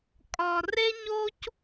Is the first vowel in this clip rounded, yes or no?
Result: yes